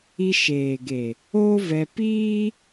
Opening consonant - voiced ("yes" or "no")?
no